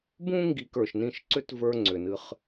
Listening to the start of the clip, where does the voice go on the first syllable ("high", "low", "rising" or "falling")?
high